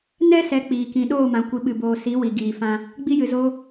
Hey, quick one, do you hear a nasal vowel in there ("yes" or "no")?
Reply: yes